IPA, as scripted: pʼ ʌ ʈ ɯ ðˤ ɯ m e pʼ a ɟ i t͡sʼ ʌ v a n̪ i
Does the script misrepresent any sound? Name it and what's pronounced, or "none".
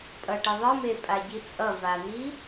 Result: none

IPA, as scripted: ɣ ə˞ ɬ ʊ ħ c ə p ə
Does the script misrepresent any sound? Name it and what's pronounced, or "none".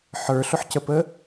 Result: ɣ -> ħ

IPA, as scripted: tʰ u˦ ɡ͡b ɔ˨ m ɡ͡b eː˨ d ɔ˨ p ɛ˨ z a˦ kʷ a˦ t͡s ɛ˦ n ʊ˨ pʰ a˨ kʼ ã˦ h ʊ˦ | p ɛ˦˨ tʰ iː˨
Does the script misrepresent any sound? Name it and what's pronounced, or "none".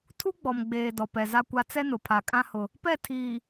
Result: none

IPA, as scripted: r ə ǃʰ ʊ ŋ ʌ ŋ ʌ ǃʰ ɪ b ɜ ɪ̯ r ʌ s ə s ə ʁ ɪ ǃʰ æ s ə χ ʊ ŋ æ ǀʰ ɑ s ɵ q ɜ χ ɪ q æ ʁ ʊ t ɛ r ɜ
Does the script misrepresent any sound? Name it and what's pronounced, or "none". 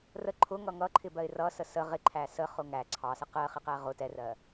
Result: ɵ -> ə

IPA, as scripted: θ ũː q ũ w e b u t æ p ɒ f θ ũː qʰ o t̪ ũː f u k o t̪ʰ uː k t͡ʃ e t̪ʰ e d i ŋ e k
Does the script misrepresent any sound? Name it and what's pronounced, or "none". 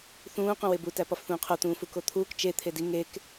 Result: none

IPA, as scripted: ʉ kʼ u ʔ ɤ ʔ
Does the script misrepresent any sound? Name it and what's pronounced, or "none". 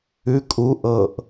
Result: none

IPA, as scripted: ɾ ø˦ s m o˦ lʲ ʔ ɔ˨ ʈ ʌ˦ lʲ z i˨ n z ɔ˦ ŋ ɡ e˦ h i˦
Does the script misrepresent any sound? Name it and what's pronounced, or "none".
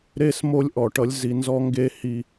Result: ø˦ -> e˦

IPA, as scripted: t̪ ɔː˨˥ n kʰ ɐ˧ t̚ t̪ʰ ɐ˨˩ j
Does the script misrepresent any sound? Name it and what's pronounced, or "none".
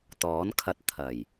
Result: none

